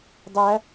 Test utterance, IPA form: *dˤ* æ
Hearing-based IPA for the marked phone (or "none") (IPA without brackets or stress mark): dˤ